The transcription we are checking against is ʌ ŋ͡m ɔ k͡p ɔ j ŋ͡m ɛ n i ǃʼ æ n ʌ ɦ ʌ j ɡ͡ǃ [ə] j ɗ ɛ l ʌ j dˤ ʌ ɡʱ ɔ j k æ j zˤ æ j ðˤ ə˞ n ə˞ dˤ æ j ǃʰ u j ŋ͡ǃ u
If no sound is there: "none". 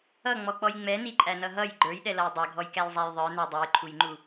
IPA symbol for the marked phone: ə˞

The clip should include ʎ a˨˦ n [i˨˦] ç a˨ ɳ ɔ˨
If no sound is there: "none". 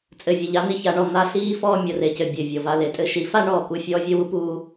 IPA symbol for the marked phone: i˨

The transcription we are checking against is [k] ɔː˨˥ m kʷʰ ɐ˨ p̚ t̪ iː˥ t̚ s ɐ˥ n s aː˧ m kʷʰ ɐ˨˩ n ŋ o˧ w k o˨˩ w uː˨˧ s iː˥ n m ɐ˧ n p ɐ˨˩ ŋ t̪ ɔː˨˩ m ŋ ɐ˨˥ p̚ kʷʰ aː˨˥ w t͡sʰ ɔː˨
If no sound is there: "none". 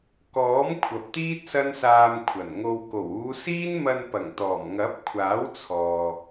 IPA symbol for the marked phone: k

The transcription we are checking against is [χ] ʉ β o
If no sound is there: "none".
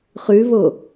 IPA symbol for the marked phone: χ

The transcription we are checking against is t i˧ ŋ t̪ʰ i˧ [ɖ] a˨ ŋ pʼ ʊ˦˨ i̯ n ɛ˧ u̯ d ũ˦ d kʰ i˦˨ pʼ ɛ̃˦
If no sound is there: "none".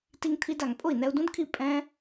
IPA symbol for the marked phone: d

